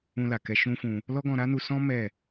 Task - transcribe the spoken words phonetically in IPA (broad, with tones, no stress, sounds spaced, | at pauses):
ũ˧ l a˨ k ɛ˧ ʃ ũ˦ f ũ˧ | l ɔ˦ ɡ ɔ̃˧ ɾ a˦ n u˧ s ɔ̃˦ m ɛ˦˨